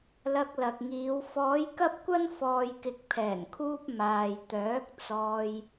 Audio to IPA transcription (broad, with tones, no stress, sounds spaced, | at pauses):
l ɐ˧ k̚ l ɐ˨ k̚ ŋ iː˨˧ w f ɔː˨˧ j k ɐ˥ p̚ kʷ ɐ˥ n f ɔː˨ j k ɪ˨ k̚ pʰ ɛː˨˩ n kʰ uː˧ p̚ m aː˨ j t̪ œː˨˥ k̚ t͡s ɔː˧ j